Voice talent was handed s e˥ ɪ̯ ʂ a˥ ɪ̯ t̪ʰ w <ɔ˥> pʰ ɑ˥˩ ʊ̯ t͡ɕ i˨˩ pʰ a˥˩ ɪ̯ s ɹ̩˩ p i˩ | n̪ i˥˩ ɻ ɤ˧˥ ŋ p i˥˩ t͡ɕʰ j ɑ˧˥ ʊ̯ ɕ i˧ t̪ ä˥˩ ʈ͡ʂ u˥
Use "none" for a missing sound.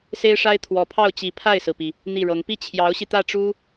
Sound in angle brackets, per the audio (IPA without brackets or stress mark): ɔ˨˩